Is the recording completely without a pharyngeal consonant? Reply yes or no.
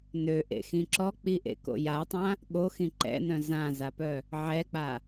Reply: no